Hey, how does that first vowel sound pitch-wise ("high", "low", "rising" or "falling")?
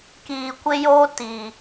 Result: low